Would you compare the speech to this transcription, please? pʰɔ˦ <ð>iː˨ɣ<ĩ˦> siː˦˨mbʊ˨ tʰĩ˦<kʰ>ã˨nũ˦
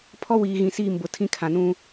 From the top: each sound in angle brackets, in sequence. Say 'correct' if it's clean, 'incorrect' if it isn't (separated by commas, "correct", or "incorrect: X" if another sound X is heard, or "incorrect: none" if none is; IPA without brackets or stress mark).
incorrect: w, incorrect: ĩ˨, correct